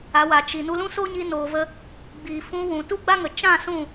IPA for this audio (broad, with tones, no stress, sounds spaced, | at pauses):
a˨˦ w a˨ t͡ʃ i˨ n u˧ l ũ˦ s oː˦ ɲ i˧ n oː˨ v ə˧ | ɡ͡b iː˨ f ũ˧ w ũ˨ t u˦ ɡ͡b a˦ ŋ ə˨ t͡ʃ ã˦˨ s ũ˦˨